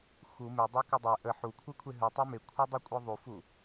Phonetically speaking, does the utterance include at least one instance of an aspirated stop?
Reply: yes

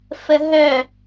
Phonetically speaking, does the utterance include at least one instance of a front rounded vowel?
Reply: yes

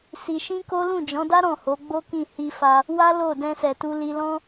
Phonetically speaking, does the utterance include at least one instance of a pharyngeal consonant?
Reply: no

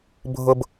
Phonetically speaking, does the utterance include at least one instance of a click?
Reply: no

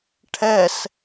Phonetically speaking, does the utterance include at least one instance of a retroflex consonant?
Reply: yes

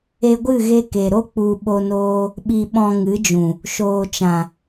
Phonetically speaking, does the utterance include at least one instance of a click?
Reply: no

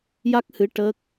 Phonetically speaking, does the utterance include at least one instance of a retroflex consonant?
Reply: yes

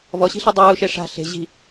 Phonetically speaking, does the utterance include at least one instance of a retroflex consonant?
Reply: yes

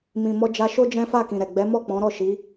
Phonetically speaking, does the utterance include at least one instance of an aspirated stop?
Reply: no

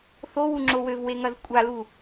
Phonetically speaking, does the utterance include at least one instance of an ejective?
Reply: yes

